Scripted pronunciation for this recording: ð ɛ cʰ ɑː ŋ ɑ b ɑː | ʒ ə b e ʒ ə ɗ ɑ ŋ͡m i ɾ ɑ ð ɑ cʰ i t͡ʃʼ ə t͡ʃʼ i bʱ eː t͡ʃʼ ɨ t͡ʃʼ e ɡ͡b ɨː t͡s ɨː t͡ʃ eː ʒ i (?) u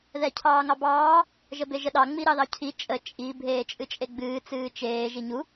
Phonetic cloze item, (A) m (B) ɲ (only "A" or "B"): B